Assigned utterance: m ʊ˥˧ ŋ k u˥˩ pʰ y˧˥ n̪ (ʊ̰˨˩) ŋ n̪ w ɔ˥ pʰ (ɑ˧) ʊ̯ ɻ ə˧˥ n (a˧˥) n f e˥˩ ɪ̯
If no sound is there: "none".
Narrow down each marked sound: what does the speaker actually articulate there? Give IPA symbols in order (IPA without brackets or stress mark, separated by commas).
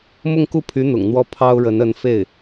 ʊ̰˨˩, ɑ˥, ə˧˥